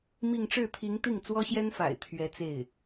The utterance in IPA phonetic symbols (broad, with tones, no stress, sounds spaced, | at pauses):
m i˥˧ ŋ ʈ͡ʂ ɻ̩˥˩ t̪ʰ i˧˥ ŋ t̪ i˥˩ ŋ t͡s w ɔ˥ ɕ j ɛ˥ n f a̰˨˩ ɪ̯ t̪ʰ ɥ ɛ˧˥ t͡s e˥˩ ɪ̯